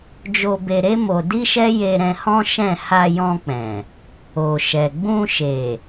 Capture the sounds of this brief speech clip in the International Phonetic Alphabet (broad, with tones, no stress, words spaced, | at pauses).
d͡ʒo˧be˧ɾe˦ mo˧ di˦ʃɛ˦ je˧ɾɛ̃˧hɔ̃˦ ʃɛ̃˦˨ ha˧jɔ̃˧k͡pɛ̃˨ | o˨ʃɛ˨ ɡ͡bũ˧ʃe˨